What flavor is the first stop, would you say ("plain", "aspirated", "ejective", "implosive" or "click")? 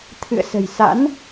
aspirated